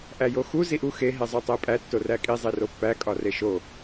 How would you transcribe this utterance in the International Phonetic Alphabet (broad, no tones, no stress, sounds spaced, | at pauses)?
ʔ æ j o x u z i ʔ u x e ɦ e zˤ o tˤ e pʼ æ tː o r æ kʼ i zˤ i r o pː æ kʼ ɒ r e ʃ o